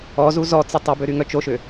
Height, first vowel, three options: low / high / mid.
mid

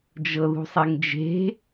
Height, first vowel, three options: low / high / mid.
mid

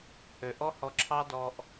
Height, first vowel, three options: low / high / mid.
mid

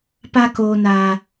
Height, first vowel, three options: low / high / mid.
low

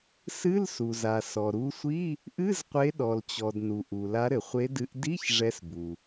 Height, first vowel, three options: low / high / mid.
high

